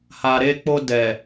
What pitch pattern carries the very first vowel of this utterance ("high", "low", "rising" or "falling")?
low